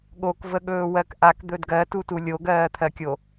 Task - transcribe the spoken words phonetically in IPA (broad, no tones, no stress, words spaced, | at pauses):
ɠokvəɠɵː wɜkʔak d̪ɵdɡɜtutu lʲoɡɜːt̪ʰɜkʲo